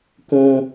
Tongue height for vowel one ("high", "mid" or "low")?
high